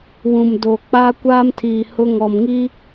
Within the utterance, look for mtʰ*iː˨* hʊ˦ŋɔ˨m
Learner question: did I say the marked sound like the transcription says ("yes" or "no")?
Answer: yes